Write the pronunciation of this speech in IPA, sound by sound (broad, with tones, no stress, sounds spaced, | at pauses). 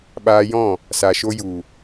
ɓ aː˧ j ɔ̃˦˨ | s a˨ ʃ o˧ j u˨